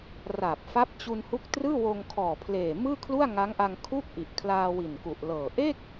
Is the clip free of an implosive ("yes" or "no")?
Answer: yes